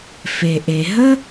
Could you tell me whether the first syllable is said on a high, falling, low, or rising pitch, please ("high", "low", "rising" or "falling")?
low